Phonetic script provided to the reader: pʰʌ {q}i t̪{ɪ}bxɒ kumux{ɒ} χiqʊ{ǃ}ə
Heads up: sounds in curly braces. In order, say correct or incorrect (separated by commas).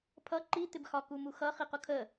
incorrect, correct, incorrect, incorrect